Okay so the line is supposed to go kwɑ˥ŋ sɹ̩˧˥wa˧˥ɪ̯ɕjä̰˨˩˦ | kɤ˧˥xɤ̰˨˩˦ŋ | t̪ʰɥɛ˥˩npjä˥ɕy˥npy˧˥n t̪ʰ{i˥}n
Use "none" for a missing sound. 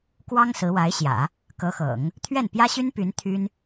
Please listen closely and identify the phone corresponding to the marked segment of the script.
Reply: y˥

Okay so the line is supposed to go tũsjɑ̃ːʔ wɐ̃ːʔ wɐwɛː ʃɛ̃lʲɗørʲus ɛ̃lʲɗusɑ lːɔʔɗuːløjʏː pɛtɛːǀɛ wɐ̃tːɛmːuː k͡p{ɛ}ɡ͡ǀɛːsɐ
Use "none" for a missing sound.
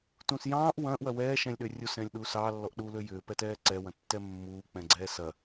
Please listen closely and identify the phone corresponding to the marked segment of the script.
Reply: ɛ̃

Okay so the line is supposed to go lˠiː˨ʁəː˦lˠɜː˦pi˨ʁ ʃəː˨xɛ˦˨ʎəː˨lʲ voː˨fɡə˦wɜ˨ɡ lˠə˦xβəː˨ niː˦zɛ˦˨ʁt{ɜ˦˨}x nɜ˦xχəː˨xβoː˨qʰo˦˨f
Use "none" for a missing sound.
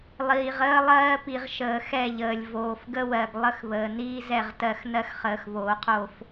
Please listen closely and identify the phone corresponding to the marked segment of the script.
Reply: ɜ˦˨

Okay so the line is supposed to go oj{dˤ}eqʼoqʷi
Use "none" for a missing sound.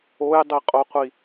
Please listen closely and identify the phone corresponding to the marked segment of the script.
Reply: dˤ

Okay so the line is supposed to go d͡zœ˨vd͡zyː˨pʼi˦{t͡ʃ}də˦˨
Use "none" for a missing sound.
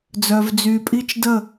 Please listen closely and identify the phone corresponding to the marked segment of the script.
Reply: t͡ʃ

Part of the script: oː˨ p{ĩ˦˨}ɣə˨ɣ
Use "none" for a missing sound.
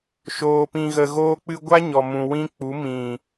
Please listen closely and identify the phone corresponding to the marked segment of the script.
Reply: ĩ˨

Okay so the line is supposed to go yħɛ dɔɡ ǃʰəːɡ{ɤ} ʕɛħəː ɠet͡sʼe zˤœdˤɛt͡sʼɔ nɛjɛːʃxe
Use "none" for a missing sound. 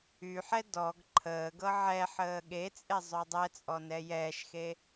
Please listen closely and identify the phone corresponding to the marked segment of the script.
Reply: ɤ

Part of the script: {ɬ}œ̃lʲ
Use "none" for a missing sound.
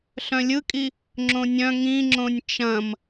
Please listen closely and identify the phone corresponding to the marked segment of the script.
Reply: ɬ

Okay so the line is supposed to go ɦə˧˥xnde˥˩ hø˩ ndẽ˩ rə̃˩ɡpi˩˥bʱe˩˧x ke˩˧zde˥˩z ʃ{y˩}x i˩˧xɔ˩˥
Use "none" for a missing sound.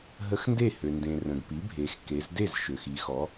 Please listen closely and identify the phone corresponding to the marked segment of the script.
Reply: ø˩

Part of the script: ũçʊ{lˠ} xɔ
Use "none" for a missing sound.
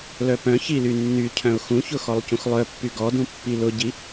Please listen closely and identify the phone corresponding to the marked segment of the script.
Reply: none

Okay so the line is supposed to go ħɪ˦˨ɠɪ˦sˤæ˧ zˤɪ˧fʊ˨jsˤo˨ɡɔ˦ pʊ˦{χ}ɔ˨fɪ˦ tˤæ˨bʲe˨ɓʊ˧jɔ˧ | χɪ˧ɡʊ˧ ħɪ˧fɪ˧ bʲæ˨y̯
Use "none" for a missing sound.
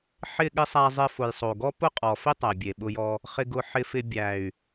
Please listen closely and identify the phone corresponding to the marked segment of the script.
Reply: qʼ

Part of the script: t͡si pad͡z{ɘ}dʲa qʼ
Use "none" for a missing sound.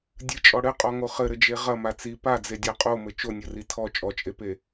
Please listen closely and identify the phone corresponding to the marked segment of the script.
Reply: e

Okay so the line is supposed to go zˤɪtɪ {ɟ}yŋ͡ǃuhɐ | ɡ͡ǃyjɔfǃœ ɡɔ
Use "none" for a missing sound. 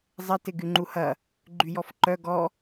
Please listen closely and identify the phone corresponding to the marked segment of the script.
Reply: ɡ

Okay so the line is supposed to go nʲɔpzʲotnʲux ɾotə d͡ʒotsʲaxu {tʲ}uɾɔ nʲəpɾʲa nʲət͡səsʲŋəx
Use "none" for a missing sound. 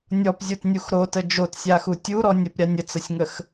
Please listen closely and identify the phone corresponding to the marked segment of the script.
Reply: tʲ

